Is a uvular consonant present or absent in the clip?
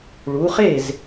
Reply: present